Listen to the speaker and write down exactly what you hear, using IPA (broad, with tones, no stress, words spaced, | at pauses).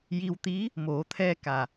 ji˧wt̪i˧˥ | moː˩˧t̪ʰɛː˧ ka˩